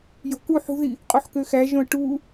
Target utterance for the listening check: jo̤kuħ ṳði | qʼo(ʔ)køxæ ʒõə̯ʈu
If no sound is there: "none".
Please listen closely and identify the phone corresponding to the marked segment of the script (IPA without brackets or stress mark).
ħ